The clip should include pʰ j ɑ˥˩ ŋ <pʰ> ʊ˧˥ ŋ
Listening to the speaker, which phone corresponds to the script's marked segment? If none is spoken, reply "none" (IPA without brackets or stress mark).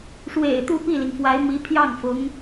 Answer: f